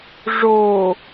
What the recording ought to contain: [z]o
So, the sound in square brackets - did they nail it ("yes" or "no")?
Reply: no